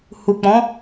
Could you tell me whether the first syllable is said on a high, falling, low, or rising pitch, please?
low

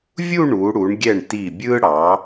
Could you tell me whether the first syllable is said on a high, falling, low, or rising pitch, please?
falling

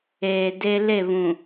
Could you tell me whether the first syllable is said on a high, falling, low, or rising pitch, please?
low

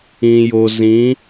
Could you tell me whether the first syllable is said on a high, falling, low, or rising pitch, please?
low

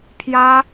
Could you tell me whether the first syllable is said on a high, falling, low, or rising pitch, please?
high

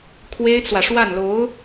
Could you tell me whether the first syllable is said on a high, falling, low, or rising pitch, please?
high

